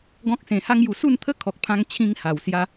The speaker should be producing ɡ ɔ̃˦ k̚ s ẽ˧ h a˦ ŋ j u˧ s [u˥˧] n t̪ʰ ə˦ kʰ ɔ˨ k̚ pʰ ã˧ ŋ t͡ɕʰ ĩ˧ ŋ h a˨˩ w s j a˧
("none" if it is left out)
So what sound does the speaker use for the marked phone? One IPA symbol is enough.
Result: u˥˧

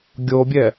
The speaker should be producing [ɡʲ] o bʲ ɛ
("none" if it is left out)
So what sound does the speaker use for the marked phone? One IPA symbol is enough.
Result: ɡʲ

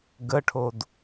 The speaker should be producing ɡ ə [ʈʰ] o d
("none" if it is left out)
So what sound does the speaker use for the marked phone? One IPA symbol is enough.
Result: ʈʰ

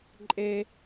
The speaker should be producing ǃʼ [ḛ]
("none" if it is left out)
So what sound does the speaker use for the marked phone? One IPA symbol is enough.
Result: e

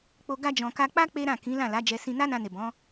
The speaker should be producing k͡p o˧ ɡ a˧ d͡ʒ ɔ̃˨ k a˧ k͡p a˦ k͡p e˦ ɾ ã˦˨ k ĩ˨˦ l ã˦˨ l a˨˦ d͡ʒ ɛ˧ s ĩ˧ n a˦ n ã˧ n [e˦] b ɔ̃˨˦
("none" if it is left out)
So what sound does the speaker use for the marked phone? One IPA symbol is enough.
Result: e˨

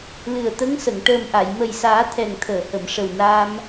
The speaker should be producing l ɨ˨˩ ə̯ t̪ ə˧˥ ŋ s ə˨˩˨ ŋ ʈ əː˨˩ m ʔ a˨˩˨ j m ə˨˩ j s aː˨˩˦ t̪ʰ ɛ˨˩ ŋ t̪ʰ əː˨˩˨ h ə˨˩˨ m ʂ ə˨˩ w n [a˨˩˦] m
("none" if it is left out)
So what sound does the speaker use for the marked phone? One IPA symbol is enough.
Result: a˧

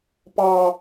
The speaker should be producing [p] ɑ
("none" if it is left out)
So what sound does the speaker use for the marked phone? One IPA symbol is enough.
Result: p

